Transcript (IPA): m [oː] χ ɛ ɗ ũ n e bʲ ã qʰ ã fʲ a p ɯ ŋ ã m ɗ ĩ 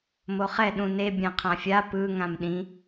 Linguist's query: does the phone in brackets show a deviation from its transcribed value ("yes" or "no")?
yes